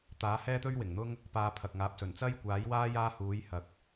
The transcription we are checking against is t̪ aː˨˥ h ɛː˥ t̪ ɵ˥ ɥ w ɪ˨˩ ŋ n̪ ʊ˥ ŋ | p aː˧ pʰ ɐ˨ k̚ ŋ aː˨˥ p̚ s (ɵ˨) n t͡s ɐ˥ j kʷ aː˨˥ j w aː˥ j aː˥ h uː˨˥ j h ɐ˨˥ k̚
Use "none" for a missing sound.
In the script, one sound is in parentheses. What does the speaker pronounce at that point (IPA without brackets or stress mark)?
ɵ˨˩